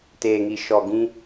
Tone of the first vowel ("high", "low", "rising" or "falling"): low